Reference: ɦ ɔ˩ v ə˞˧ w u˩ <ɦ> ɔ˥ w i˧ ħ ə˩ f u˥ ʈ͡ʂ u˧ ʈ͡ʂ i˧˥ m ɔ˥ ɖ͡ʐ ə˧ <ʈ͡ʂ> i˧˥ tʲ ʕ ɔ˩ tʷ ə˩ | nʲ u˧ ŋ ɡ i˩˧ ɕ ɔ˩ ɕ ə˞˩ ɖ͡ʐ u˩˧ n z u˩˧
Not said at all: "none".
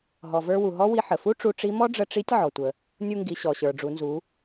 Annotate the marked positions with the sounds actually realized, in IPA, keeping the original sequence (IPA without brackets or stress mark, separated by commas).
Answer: ɦ, ʈ͡ʂ